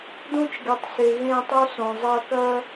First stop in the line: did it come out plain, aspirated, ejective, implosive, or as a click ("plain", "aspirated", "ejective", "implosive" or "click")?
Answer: plain